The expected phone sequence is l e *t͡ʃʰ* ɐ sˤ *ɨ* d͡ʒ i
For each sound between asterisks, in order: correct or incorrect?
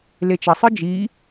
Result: incorrect, correct

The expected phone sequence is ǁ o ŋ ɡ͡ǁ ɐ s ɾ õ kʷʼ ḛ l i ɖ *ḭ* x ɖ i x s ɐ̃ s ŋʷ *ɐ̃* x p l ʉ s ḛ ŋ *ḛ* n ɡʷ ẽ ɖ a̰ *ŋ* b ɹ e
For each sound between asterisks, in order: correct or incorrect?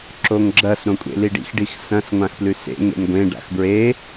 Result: correct, incorrect, correct, incorrect

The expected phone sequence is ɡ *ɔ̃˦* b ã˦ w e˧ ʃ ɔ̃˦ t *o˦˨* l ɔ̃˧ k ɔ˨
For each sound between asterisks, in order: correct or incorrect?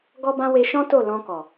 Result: incorrect, correct

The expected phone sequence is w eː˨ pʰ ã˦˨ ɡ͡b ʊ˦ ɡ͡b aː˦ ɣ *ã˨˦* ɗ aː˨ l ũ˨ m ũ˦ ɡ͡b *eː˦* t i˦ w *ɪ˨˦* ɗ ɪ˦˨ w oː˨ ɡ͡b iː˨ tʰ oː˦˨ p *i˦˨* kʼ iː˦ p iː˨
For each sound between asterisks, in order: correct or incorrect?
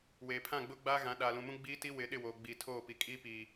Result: correct, incorrect, correct, incorrect

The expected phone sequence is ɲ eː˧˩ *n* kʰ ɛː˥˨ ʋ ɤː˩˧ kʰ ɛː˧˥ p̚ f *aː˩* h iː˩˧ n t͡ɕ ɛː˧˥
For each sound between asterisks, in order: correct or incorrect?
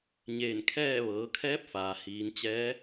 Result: correct, correct

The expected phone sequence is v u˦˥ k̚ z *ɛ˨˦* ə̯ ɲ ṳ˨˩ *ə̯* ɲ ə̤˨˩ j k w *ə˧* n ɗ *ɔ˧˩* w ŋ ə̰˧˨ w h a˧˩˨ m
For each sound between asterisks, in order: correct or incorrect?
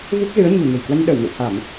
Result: incorrect, incorrect, correct, incorrect

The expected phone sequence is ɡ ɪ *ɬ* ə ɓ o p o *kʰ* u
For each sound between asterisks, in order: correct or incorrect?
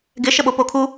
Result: incorrect, correct

